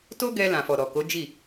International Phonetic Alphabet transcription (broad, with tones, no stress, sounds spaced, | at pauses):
t o˦ ɡ ɛ˧ l ã˨ f ɔ˨ ɾ ɔ˨ k o˨˦ d͡ʒ i˦˨